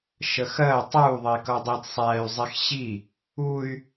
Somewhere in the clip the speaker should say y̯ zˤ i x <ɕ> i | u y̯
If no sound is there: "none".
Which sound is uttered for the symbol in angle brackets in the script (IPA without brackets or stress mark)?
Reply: ɕ